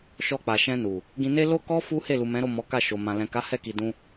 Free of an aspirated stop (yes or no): yes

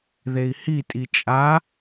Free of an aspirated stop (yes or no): yes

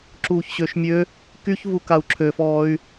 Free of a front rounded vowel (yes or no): no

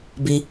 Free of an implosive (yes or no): yes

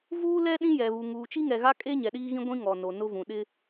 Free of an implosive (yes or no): no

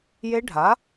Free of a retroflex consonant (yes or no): no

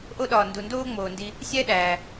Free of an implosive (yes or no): no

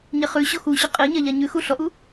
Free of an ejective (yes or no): no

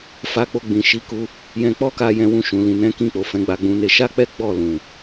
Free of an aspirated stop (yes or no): yes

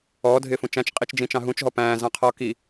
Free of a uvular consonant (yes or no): no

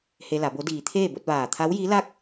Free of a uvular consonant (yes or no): yes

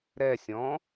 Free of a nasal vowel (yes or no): no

